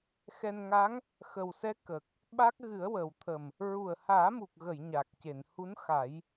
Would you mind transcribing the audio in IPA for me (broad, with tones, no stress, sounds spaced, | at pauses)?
x ɛ˧ n ŋ a˧˥ ŋ | x ə˨˩ w s ɛ˧˥ k ə˨˩ k̚ | ɓ a˦˥ k̚ ɣ ɨ˨˩˦ ə̯ w ə˨˩˨ w t̪ʰ ə˨˩ m | ɹ u˨˩ ə̯ h aː˨˩˦ m u˨˩ k̚ ɣ ə˨˩˨ j ɲ a˨˩ k̚ c e˨˩˨ n h u˧˥ n x a˨˩˦ j